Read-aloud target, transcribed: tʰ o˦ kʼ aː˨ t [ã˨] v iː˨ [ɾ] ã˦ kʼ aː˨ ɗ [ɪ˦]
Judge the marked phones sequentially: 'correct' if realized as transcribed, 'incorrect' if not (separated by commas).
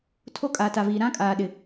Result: incorrect, correct, incorrect